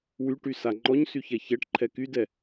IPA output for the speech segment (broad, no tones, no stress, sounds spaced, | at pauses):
w y ʈ y s a ŋ͡ǃ ɔ ɲ s y ç ɛ ç ɛ ʈ ǃʰ ɛ k y d ɛ